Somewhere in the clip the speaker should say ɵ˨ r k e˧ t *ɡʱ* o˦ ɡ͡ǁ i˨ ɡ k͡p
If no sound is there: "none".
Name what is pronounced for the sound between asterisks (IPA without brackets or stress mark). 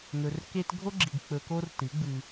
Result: ɡʱ